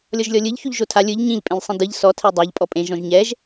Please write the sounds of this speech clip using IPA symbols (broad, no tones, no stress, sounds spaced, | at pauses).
lʲ ɔ ʒ lʲ ɔ lʲ ɯ ʎ ç u ʎ ʒ o tʰ a lʲ ɯ ʎ ɲ ĩ ʎ pʼ ẽ ʎ sˤ ĩ d ɯ ʎ s ɔ tʰ ɛ dˤ a ʎ pʼ ɔ pʼ ẽ ʒ ɔ̃ ʒ ɲ ɛ ʒ